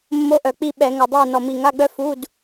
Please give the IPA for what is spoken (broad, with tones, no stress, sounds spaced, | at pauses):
mː o˧˥ ʔ œ˨˩ k͡p i˦˨ ɓ ɛ˧˩˧ ŋ ɛ˨˩ dˤ ɛ˦˨ u̯ n ɔ˨˩ m i˨˩ ŋ a˧˥˧ ɡ͡b œ˥ f u˧˥˧ d